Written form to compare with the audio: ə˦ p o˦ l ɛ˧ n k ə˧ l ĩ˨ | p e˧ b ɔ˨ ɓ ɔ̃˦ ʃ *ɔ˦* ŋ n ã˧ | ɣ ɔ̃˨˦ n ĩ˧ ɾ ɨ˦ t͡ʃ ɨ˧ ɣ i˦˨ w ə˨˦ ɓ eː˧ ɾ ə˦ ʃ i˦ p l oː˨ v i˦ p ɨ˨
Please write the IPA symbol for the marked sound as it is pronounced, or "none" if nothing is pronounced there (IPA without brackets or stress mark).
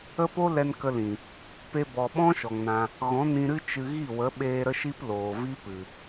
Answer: ɔ˨